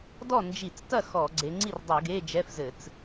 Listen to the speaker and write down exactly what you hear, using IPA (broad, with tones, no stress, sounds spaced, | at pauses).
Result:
d ɔ˥˩ n d͡ʒ i˧˩˧ t͡s t ɐ˥˩ x ɔ˧˩˧ ɡ͡ǀ e˨˦ ŋ͡ǀ i˥˩ r dˤ u˧˩˧ ɡ e˧˥˧ d͡ʒ ɛ˧˥˧ f z ɘ˧˩˧ t͡s